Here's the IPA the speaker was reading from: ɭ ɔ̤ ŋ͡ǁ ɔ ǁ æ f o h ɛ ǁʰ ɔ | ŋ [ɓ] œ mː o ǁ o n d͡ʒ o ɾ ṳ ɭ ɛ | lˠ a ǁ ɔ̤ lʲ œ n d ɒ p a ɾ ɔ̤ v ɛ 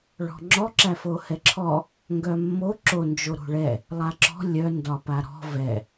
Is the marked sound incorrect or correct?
incorrect